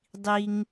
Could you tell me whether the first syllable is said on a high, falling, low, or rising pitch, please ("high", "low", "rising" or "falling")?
high